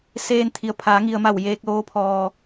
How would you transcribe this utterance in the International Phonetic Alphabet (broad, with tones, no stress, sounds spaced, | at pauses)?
s eː˧ n t̪ʰ i˩ ə̯ pʰ aː˩˧ ŋ i˩ ə̯ m a˧˩ w j eː˧ k̚ l oː˧˥ pʰ ɔː˧